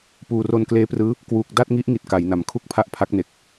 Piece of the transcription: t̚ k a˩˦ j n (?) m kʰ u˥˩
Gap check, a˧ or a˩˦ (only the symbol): a˩˦